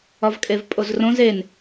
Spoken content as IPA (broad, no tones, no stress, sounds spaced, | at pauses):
ɒ v kʼ e v pʼ o z r õ z e n